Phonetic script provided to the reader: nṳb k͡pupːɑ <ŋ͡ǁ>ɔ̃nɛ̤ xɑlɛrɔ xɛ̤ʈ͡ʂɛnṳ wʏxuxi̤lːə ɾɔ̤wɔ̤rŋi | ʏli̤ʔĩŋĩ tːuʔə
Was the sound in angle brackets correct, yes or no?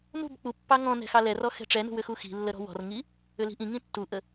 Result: no